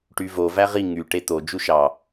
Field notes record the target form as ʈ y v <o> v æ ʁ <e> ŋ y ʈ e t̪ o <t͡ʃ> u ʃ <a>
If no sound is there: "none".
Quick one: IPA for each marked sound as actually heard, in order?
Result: o, i, d͡ʒ, ɑ

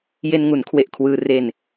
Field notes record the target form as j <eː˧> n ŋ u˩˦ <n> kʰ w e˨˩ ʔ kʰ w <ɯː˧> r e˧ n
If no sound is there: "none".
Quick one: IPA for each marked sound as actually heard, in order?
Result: e˧, n, ɯː˧

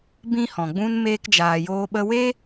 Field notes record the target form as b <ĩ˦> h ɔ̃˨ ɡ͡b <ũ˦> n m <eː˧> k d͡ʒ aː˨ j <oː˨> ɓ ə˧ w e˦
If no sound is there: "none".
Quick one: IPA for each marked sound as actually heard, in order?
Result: ĩ˦, ũ˦, eː˧, oː˧

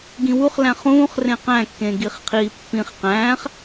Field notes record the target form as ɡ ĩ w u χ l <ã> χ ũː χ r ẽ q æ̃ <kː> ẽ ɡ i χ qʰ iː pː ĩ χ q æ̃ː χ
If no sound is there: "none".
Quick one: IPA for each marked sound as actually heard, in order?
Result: æ̃, kː

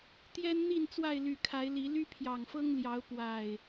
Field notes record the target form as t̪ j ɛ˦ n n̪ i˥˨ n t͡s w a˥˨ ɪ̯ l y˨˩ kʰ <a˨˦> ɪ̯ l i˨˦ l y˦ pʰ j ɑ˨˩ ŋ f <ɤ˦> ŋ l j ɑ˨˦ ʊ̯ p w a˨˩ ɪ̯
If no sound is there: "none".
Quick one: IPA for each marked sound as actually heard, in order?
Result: a˨˦, ɤ˦

